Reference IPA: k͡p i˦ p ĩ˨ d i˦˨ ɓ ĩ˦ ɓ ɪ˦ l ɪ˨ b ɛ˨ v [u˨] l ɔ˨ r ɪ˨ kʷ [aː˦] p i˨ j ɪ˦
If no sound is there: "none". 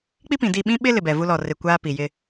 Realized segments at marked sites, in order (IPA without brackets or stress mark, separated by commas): u˦, aː˦